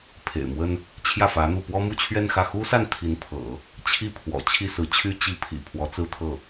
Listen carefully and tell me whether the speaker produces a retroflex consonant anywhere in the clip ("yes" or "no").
no